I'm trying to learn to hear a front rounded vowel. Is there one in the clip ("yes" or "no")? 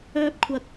yes